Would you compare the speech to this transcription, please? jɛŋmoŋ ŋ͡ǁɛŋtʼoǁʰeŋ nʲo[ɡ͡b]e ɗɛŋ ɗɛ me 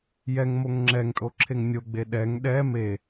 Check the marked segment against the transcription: correct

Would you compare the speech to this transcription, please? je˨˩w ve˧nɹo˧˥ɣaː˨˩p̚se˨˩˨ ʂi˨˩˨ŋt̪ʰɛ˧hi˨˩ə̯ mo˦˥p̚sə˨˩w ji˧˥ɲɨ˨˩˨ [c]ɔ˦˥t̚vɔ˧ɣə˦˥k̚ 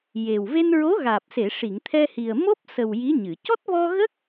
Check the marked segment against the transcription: correct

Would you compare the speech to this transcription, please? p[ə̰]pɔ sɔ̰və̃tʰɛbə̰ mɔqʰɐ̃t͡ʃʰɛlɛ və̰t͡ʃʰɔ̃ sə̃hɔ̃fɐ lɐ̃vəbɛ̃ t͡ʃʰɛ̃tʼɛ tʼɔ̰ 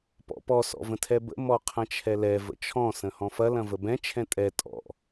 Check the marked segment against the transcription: incorrect: ɔ̰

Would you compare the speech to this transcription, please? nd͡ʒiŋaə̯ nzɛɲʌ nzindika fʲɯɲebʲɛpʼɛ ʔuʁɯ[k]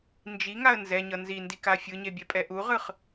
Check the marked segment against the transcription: incorrect: χ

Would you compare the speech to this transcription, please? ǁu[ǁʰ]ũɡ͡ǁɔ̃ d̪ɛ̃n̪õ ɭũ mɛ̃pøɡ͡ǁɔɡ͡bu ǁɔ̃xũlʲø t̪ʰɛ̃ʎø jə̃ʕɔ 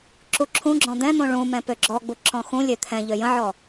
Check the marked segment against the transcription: correct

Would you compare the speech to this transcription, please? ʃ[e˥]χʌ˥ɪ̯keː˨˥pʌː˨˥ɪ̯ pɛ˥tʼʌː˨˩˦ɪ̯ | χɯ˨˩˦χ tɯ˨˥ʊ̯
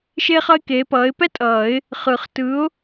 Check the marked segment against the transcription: correct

